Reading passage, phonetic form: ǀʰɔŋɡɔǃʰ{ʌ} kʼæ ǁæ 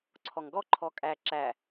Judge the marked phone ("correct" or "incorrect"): incorrect